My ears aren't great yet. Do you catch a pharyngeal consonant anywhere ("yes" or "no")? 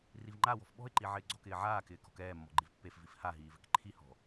yes